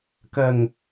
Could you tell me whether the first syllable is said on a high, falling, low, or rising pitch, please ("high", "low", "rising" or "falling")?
low